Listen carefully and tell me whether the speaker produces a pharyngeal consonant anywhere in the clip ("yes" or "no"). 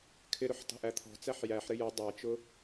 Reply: yes